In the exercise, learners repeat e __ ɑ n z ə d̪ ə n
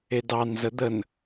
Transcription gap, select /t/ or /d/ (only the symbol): d